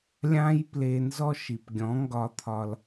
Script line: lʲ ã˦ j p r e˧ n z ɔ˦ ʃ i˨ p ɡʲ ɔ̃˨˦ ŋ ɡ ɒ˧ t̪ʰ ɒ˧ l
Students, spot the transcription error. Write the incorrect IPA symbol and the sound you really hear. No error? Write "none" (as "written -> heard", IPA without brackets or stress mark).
r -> l